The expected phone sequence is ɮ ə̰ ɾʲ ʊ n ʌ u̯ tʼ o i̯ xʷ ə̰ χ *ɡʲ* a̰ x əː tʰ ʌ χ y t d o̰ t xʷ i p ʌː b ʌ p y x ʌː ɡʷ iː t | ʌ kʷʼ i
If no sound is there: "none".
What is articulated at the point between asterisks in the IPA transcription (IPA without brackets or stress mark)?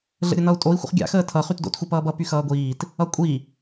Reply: ɡʲ